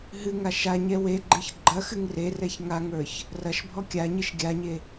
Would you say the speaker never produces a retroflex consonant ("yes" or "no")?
yes